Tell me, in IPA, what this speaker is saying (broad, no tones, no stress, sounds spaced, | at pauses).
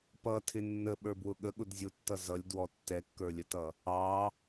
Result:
p ʌ tʰ ɪ nː ə ɓ ə˞ b w ʊ ɠ ə ɠ ʊ d zʲ ʊ tː ʌ z ʌ lʲ d w ɔ tː ɛ kː ə˞ lʲ ə t ʌ | ɑ